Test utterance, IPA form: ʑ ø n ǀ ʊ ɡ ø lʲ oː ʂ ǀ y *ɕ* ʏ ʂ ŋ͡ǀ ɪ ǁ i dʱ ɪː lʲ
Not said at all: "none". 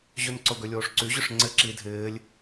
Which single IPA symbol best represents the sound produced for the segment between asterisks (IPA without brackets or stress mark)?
ʑ